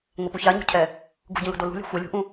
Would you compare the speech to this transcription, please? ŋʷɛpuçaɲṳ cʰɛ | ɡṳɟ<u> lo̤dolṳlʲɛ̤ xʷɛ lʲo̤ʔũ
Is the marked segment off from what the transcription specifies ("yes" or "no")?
yes